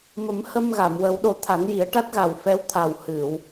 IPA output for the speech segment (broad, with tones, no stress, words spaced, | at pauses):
mə˨˩˦mhə˧mɣa˨˩˨m wə˨˩˦wɗo˨˩˦ t̪ʰa˨˩˦nji˨˩˦ə̯ ʈa˦˥t̚ɣa˨˩w fɛ˧˥wt̪ʰa˨˩w hɨ˨˩˨w